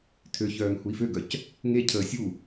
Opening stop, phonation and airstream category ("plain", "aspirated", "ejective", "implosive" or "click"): aspirated